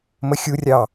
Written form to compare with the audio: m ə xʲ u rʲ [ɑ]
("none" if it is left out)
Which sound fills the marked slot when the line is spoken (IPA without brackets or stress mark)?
ɑ